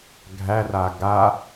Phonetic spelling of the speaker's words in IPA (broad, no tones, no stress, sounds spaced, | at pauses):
ɡʱ æ r a ɡ a